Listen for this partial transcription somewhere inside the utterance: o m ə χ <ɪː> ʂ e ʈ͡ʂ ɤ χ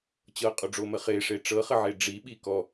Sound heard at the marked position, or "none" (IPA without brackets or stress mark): ɪː